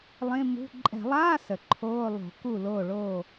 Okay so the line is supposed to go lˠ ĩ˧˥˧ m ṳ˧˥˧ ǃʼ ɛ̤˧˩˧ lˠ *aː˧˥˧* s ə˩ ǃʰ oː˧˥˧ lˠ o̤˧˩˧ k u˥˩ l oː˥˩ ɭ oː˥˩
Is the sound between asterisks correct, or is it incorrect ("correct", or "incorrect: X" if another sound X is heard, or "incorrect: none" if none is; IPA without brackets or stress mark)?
correct